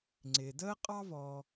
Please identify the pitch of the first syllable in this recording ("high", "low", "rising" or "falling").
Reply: low